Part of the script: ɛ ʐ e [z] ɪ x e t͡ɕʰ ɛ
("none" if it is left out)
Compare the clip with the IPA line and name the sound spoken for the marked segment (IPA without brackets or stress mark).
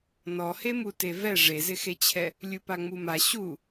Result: z